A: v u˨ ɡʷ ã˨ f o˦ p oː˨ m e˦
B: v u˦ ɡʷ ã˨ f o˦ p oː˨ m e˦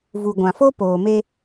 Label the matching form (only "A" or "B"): A